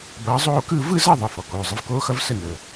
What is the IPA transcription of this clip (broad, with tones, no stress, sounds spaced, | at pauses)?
b ʌː˨˦ zˤ oː˥˧ k ɯ˥˧ v ɯ˥˧ z ʌ˥˧ ðˤ ə˩˧˩ f ɔ˩ k oː˩˧˩ zˤ ə˨˦ v k oː˦˥ x ʌ˦˥ v s ə˥˧ n əː˩